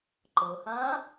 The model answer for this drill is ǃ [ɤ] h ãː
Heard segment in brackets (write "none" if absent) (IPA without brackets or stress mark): ɤ